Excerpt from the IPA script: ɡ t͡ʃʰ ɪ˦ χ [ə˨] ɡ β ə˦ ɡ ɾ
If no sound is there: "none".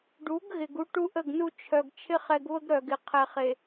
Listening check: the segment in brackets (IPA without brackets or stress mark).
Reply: ɛ˨